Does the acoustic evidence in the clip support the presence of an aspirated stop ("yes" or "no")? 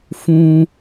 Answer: no